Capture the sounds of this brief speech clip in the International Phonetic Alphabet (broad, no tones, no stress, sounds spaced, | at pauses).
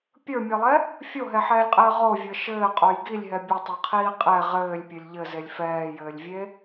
pʲ ə˞ mʲ e lˠ ɛ | fʲ o ɦ ɛ ħ ɛː lʲ qʼ ɘː ʁ o vʲ ə˞ ʃ ɘː qʼ o j ɡ i lʲ ɦ ɛ bʲ ɘ tˤ ə˞ qʰ iː qʼ ɛ ʁ ɘː lʲ pʲ ɘ lʲ ʎ ɘ z e lʲ f ɛː j ɘː lʲ vʲ e